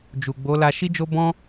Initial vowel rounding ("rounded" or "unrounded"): rounded